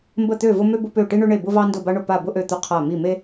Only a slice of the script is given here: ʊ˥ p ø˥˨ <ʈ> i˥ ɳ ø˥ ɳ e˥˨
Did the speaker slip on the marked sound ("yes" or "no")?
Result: no